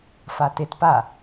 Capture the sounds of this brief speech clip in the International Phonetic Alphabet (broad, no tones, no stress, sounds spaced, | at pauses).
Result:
f a t e t p a